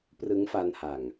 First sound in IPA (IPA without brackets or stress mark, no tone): p